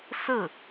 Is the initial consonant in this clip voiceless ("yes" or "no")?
yes